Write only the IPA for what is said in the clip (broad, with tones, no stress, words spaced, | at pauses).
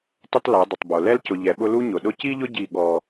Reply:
tɪ˦tˤla˨˦dˤɪ˨tˤbo˨ lɛ˦lcʊ˨ ʎɛ˨ɓʊ˦ lu˦ɲʊ˨ɗʊ˦ ci˦ʎʊ˦ ɟi˦˨ ɠɔ˦